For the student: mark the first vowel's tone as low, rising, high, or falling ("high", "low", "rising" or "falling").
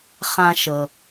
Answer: high